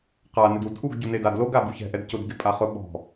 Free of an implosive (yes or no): no